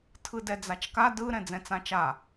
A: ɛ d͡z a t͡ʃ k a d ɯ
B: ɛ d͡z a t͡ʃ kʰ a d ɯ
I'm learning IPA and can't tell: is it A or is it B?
A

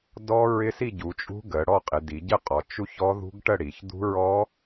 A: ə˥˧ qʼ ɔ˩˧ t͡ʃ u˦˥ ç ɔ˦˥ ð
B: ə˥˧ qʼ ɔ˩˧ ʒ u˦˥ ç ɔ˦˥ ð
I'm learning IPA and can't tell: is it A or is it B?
A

